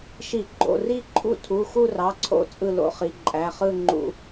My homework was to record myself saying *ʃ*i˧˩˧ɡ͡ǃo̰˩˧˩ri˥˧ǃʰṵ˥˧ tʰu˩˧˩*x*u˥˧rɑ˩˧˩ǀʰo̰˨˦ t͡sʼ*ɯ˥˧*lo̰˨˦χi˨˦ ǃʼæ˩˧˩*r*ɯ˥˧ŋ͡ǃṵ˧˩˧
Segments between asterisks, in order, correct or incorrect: correct, correct, correct, incorrect

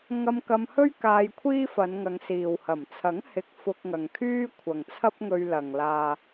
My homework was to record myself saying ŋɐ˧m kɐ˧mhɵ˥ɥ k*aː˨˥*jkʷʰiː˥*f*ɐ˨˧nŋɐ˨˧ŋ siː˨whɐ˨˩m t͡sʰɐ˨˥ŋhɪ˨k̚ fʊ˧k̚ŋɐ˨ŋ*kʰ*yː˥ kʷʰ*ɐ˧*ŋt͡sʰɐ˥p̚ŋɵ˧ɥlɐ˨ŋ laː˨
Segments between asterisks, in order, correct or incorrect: incorrect, correct, correct, incorrect

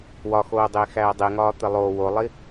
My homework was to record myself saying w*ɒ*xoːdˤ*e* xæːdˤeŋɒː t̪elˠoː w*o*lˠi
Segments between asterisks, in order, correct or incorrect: correct, incorrect, correct

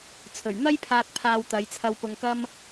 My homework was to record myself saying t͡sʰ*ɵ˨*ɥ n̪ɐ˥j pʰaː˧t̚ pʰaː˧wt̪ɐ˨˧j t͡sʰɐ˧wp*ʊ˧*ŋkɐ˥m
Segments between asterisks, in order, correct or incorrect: incorrect, correct

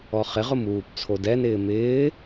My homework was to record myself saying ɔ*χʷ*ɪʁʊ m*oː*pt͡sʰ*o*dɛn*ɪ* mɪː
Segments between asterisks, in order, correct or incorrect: incorrect, incorrect, correct, incorrect

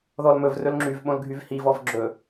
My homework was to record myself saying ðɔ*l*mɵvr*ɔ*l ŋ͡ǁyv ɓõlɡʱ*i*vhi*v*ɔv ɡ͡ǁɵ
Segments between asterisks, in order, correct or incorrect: correct, incorrect, incorrect, correct

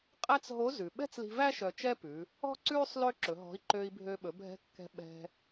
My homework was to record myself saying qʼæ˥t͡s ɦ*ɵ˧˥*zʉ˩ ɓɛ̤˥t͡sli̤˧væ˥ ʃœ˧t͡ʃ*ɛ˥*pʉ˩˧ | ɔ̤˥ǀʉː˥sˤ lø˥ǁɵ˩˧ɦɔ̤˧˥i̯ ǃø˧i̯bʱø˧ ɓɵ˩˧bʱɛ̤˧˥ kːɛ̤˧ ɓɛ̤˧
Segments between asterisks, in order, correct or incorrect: incorrect, correct

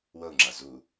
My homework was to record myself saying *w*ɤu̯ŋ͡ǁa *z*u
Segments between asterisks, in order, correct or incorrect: correct, correct

